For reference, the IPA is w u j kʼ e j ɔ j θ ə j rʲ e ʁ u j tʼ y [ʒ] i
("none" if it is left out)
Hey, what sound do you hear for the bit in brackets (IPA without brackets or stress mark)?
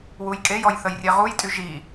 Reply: ʒ